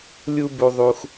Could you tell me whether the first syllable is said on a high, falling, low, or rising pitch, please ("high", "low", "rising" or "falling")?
high